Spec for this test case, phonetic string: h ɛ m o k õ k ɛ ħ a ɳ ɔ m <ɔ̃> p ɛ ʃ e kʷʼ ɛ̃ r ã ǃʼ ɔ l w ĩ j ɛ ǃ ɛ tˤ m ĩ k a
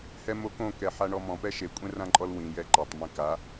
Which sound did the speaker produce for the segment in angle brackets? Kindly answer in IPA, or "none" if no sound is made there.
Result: ɔ̃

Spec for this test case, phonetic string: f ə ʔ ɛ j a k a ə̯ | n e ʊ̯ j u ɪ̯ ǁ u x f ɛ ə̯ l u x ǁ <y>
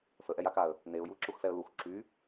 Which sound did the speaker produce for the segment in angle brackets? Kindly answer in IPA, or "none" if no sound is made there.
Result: y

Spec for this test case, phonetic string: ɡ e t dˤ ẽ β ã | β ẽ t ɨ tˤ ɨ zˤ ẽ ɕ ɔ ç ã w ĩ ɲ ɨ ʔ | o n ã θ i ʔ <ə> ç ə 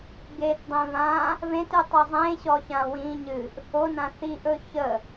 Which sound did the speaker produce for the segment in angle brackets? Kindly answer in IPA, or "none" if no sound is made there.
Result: ɵ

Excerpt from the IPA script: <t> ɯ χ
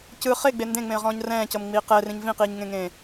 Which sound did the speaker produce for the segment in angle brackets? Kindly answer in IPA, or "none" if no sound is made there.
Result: c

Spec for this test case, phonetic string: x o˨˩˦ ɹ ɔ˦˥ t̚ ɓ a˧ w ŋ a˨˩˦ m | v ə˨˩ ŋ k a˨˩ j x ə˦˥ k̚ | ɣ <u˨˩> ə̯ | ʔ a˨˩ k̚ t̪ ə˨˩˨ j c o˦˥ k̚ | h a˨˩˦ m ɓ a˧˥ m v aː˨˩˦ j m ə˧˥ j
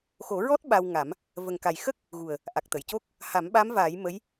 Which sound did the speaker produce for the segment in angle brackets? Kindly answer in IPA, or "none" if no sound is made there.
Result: u˨˩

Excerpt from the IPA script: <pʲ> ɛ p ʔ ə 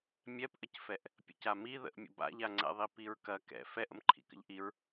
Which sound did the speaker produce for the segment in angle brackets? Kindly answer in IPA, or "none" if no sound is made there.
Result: mʲ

